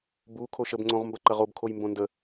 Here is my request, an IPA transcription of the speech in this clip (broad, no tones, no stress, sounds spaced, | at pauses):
b u kʰ o ʃ ə b ŋ͡ǀ õ ʁ m b ɐ ǃ ɐ ʁ o b kʰ o j m b õ n d ə